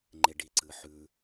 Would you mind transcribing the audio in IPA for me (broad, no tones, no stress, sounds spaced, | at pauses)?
ŋ͡ǃ e ɖ i ǀ ɨ ħ ʉ